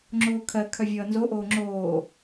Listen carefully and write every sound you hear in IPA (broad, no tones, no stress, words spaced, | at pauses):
ŋ͡ǁoːkʰɜ kʰœvʲʌːnzo ʔoːŋ͡ǁoː